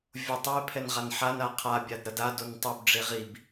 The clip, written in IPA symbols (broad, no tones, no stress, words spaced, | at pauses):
vʲotˤe pʰɛnʁanħan aqʰa bʲadɾʌda dontˤub ɖ͡ʐeʁib